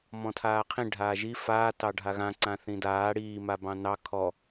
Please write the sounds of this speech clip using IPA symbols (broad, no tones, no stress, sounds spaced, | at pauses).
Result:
m ɔ̃ tʰ aː qʰ ĩ ɖʱ aː ʒ i f aː t ɑ ɖʱ a ɣ ã ǀ ã θ ĩ d aː ɽ iː m a b ɑ̃ n ɑ kʰ ɔ